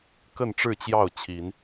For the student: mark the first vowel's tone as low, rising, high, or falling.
falling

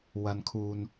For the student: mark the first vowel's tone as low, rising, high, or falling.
high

